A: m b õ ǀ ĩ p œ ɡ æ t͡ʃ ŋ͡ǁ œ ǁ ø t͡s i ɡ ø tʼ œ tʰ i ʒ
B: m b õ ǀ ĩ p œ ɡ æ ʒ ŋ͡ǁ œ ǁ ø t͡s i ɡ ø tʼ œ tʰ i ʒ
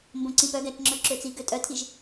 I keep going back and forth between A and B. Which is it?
A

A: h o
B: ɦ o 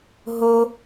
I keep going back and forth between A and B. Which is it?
B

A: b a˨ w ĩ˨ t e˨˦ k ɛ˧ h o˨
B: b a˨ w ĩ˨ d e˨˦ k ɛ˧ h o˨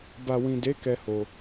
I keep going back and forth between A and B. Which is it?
B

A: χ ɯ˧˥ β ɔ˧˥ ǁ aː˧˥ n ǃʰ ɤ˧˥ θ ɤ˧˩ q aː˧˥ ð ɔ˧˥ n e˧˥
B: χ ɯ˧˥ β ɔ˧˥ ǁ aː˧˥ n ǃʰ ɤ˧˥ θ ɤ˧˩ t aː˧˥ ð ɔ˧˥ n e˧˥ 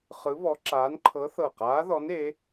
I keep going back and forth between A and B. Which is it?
A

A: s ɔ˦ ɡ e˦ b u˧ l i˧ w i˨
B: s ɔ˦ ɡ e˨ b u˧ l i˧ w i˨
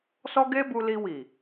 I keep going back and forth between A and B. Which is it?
A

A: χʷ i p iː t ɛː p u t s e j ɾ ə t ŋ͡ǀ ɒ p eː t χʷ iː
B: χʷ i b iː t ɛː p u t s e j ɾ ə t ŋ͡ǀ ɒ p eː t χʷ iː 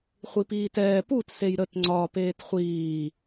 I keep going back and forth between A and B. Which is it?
A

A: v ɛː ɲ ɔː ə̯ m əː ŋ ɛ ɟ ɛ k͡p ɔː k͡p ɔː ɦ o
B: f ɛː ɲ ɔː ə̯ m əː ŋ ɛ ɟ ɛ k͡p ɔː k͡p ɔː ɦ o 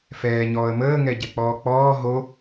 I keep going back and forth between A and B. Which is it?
B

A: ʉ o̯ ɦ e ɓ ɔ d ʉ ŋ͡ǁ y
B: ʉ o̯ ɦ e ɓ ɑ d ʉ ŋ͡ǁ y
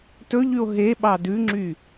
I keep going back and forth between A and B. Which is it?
B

